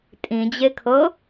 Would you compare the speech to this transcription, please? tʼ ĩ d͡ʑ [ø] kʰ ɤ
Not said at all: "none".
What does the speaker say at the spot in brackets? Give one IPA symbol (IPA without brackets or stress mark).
e